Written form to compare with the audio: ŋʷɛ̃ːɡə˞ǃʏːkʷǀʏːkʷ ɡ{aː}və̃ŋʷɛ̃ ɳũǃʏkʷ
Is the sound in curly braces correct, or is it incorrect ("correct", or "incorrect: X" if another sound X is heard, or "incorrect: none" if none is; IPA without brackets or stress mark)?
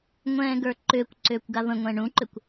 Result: incorrect: a